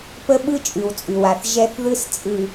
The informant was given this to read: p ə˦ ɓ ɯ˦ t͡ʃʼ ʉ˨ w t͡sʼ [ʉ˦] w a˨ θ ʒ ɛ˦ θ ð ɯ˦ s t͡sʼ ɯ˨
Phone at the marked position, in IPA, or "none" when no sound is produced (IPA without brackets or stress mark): ʉ˨